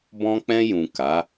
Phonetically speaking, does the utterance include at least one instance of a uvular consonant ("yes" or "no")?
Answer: no